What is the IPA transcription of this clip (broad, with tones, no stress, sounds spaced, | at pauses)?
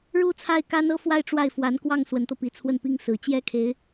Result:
ɻ u˥˧ t͡sʰ a˥˩ ɪ̯ k a˥ n ɤ˥ f w a˥˧ ɪ̯ ʈ͡ʂ w a˥˩ ɪ̯ f w a˧˥ n k w ɑ˥˩ ŋ s w ə˧˥ n t̪ ɤ˧ p i˧˥ t͡sʰ w ə˥˩ n p i˥ ŋ s ɹ̩˨˩ t͡ɕ j ɛ˥˩ kʰ e˧˥ ɪ̯